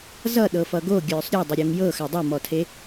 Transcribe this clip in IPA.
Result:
z ʌ ɗ ɤ f ʌ ɡ o ɡʲ œː sˤ ɾʲ ɔ dˤ ə ɾʲ o ŋ j ɤ x a dˤ o m ɔ tʰ e

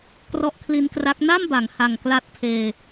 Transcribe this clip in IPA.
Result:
k r ɔ˦˥ ʔ kʰ l i˧ n k r a˦˥ k̚ n a˥˩ m b a˩˦ ŋ h a˨˩ ŋ k l a˦˥ t̚ pʰ eː˧

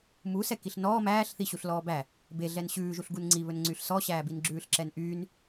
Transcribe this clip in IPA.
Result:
m u s ɛ k i ɬ n ɔː m æː ɬ θ i ɕ u ɬ l ɔː b æ | b e ɮ ɛ n ɕ ʉː ʒ u ɬ ɡ u n ŋ͡ǀ i β ɵ n ŋ͡ǀ y ɬ s ɔ ɕ æː b i n ɡ͡ǁ ʉː ɬ ǁ ɛ n ʔ yː n

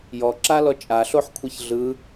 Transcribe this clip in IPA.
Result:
j ɔ ǁ a l ɔ t͡ʃʼ a ɬ o ħ kʷʰ ɛ ç ɮ ɯ

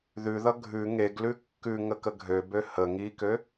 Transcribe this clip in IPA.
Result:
ð ʉ ð ʌ ɡʱ ʉ ŋ e ɡ l ʉ kː ʉ ŋ ə k ə ɡʱ ø b ø h ə ŋ i k ø

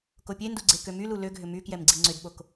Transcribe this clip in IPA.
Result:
k o pʲ e n d u ɡ͡ǀ e k ø m y l u l ø ɡʱ ʏ m y k j ɛ m ɡ͡ǀ i ŋ͡ǀ ʏ d ɓ o k

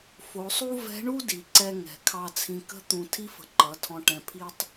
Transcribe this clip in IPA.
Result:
f o˩˧ sˤ u˥ v ɛ̤˧˥ ɳ u˥ d i˩ ǀ ɛ˧ ŋ ɛ̤˩ kʰ ɑ˧ t͡sʰ ĩ˧ k ə̤˥ t̪ ũ˧ tʰ i˥ f ə̤˧ ǃ ʌ˩˧ tʰ ɔ̃˧ ʈ ɛ̃˧ pʰ i˥ tˤ

